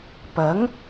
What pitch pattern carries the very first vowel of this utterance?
rising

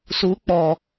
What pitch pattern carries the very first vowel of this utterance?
rising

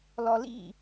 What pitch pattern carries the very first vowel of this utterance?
low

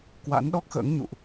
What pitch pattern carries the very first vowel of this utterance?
rising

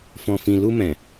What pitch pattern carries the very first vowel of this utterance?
low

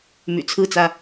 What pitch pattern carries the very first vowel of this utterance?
low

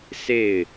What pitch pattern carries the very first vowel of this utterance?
falling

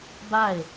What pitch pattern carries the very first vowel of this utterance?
falling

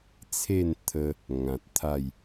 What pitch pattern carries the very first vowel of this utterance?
falling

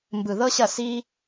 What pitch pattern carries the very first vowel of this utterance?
low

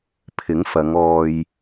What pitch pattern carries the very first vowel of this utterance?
rising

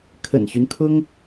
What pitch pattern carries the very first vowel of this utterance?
low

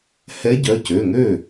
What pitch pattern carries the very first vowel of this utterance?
rising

